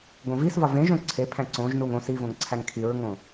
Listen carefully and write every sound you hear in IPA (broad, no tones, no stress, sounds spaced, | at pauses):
ɡ õ v i s v ɒ v ẽ ʒ õ ǀʰ e pʰ æ̃ ǀ õ ʒ n u ŋ õ s i v õ ŋ ǀʰ æ ŋ kʰ i ɹ ŋ õ